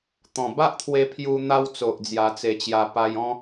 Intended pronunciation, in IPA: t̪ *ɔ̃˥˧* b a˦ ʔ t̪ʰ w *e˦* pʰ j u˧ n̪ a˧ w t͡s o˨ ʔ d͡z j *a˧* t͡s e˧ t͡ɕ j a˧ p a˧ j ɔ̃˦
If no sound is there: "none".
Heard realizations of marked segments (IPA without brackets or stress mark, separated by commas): ɔ̃˨˩, e˧, a˧